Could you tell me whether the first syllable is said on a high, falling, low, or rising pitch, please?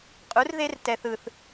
rising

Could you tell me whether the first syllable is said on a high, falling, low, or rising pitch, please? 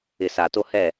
low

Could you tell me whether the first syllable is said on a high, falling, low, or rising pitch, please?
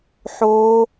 low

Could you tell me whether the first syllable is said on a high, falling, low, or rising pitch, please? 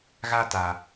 high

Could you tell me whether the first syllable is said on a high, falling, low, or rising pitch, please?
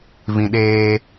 low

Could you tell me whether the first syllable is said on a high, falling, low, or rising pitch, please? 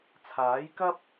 rising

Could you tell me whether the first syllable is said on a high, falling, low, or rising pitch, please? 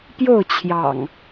falling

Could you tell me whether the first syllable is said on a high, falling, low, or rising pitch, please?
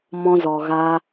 high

